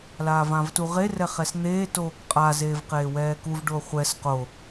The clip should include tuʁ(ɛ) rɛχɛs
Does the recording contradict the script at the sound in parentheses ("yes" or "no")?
yes